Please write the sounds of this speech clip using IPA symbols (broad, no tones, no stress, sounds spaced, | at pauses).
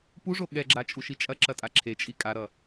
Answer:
p u ʐ o ɠ ɛ ɡ͡ǁ a t͡ʃʼ u ʃ i t͡ʃʼ ɐ ǁ ɐ tʼ a ǁʰ e t͡ʃʼ i kʼ a ɾ ʌ